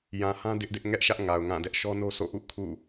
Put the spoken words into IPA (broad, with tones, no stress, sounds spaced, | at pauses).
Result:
j ã˨ h ã˦ d ɪ˦ ʔ d ɪ˦ ʔ ŋ ɛ˦ ʔ ʃ ä˦ ʔ ŋ a˨ ʊ̯ ŋ ã˦˨ d ɛ˦ ʔ ʃ ɔ˦ n o˦ sʰ o̰˦˨ ʔ ṵ˦˨ kʰ ṵ˦˨